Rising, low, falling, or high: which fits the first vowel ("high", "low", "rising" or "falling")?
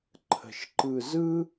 low